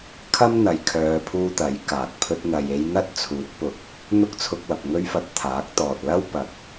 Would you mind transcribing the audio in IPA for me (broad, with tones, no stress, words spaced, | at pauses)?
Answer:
kʰɐ˥mn̪ɐ˨˧jkʰœː˨˧pʰuː˧ t̪ɐ˨˥jkaː˨k̚ pʰɵ˧t̚n̪ɐ˨je˧jn̪ɐ˥t̚ t͡sʰuː˨˥t̚pʊ˨˥k̚ | n̪ʊ˥k̚t͡sʰʊ˧k̚wɐ˨p̚ ŋɵ˥ɥfɐ˧t̚t̪ʰaː˨˥k̚t̪ɔː˨t̚ lɐ˥w pɐ˨˥k̚